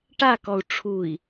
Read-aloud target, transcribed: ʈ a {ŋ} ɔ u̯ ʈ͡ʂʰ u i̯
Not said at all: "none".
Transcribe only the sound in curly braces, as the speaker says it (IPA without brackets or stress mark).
k